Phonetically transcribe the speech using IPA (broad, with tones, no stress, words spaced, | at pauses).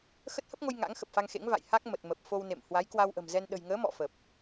xə˦˥t̚hə˦˥p̚ŋo˧j ŋa̰˧˥ŋxə˨˩p̚fa˧ŋxḛ˧˥ŋ va̰˧˨j ha˦˥k̚mə˨˩t̚ mə˨˩p̚fo˧w nḛ˧˨m hwa˨˦j kwa˧wʔə̤˨˩mzɛ˧n ɗə̤˨˩jŋəː˨˦mɔ̰˧˨ fə˨˩p̚